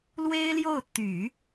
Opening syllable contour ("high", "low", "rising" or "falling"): high